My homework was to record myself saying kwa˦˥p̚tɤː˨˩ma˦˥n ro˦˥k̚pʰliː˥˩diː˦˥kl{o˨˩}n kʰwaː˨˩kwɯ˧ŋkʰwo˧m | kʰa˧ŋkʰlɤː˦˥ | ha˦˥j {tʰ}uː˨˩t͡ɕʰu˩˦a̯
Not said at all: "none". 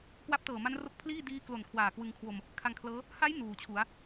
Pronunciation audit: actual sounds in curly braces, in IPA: o˨˩, n

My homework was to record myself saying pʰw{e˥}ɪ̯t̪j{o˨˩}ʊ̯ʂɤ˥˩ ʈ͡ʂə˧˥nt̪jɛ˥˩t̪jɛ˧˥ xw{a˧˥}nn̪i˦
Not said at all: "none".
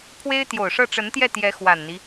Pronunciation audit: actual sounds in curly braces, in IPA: e˥, o˨˩, a˨˩

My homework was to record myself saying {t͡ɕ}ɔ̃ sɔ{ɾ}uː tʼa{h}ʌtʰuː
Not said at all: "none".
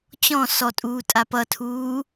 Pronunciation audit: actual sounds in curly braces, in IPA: t͡ɕ, tʼ, p

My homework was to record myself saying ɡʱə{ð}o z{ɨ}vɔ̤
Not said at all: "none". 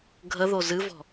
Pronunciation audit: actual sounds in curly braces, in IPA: ð, ɨ

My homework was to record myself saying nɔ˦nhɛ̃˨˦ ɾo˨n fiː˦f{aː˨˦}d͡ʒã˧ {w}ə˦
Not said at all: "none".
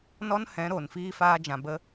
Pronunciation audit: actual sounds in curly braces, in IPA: aː˦, b

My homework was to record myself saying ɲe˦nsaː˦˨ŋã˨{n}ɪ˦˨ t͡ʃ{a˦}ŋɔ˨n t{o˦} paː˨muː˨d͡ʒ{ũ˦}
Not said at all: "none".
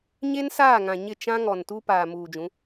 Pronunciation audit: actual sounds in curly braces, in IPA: ɲ, ã˦, u˦, ũ˨˦

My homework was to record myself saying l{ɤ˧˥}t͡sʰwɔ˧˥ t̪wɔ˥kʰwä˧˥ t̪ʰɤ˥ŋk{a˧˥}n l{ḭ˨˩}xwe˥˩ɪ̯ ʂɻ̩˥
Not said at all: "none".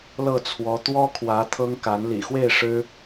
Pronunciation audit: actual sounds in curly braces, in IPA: ɤ˥˩, a˧˥, ḭ˨˩

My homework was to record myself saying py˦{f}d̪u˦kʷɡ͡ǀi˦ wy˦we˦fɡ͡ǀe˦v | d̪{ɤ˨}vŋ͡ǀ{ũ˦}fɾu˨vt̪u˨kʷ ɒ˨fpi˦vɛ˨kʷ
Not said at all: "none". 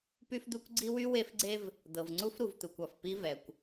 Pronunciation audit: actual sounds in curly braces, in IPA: f, ɤ˨, u˦

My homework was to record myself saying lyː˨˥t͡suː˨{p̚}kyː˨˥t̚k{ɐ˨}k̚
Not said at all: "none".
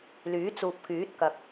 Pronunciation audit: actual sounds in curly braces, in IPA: p̚, ɐ˨

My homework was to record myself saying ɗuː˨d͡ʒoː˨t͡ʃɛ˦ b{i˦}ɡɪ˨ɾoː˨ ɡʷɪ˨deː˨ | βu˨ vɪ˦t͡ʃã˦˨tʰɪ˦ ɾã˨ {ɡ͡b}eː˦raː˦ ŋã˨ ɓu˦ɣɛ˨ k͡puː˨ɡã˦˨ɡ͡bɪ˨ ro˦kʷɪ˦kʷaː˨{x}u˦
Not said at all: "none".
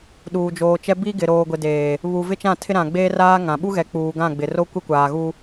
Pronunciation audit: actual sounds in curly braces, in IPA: i˦, ɡ͡b, ɣ

